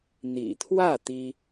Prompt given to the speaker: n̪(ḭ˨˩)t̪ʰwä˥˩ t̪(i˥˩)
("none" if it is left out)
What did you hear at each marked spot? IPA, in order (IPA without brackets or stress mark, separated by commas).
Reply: ḭ˨˩, i˥